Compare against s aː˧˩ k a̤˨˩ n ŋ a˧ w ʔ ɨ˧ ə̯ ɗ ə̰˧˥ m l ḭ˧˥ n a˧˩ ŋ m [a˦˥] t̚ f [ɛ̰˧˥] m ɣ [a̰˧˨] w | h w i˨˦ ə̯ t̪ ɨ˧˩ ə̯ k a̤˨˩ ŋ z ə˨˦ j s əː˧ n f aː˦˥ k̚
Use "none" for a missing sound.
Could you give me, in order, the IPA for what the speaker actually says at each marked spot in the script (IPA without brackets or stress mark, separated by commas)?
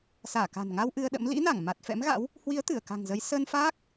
a˨˩, ɛ̰˧˥, a̰˧˥